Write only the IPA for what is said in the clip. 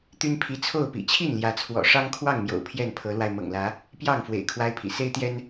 t̪y˦npʰi˨˦ t͡sʰo˥˨ʊ̯pḭ˨˩ t͡ɕʰi˥˨nljä˨˦t͡sʰwɔ̰˨˩ ʂɑ˦ŋkʰwɑ˥˨ŋmjo̰˨˩ʊ̯ pʰjɛ˥˨npʰɤ˨˦lwa˧ɪ̯ mɤ̰˨˩ŋlä˨˦ | pjɑ˥˨ŋ fwḛ˨˩ɪ̯ kʰwa˦ɪ̯pʰḭ˨˩ se˦ɪ̯t̪jɛ˦n

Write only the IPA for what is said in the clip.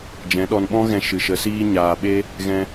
d͡ʒɛ̃˨˦ɗɔ˧n ɓɔ̃˦ɣɛ̃˧ ʃɨ˨ʃə˨˦siː˦ ɲaː˨ɓe˦ | ɣɛ̃˧

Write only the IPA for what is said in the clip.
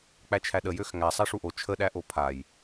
k͡pæt͡ʃʰæɗə jøxŋæ sˤæʂuʔo t͡ʃʰə ɗæʔopʰaj

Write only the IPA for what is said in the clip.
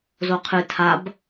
zoqʰɨ tʰab

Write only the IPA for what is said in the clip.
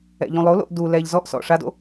ɛ̰ʎũlˠolo̰ʔ du lɛʎ zɔʔsɔ̰ ʂado̰

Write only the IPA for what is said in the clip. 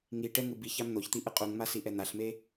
ŋi ʈɛŋɯ bi çamn̪oçt̪i ʔɯqʼuŋma siʔɛn̪aɬme

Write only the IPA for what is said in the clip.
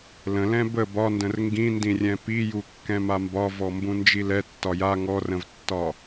lə̃lɛ̃ bə bɒndə̃r ŋɡĩndĩrʲɛ̃ piju kːɛ̃mambɒ vɔmbũnd͡ʒilɛ tːɒja ŋɔrə̃vtːɒ

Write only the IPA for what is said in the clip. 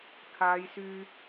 kʰaː˨˧jsyː˧

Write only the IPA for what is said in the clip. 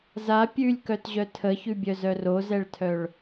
za pʲʉlʲkœtʑœ tʰəçʉbʲœzœr ozɛɭtʰœɭ

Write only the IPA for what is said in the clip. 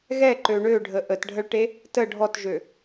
ɣɛǃø ɳøɖʱə ʔətɖʱəɭʈe | tə ɖʱɔtʒø

